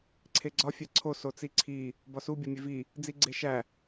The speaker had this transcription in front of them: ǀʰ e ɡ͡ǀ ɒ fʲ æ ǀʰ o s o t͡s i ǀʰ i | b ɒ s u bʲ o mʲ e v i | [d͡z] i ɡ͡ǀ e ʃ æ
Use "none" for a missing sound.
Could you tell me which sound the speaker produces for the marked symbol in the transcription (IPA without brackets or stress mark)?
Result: d͡z